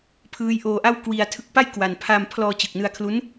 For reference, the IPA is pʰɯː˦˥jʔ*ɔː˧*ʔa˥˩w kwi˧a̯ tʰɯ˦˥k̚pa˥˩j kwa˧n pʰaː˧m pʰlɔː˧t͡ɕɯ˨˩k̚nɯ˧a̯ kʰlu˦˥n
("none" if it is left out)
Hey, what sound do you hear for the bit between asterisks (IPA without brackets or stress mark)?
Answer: oː˧